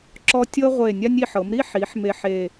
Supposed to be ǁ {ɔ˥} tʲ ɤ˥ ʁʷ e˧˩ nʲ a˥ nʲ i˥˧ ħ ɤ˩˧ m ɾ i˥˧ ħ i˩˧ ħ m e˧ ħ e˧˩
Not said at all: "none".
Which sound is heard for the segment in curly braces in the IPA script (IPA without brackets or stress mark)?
ɔ˥